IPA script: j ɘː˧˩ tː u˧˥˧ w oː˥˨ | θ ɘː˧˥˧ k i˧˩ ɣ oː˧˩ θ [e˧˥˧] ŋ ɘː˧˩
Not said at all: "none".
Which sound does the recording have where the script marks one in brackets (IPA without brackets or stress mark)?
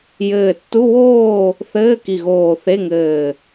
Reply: e˧˥˧